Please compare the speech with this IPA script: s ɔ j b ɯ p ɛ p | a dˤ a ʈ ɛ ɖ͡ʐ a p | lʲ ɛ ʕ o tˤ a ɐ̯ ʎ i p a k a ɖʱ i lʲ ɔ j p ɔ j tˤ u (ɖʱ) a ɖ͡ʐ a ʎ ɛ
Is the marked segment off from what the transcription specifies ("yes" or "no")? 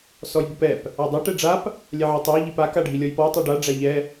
yes